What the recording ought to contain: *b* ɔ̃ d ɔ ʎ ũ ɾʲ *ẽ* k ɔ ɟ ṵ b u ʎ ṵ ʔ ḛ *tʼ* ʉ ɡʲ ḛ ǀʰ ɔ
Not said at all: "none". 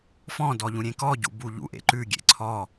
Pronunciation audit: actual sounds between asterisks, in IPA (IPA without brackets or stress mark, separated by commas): f, ẽ, ǃ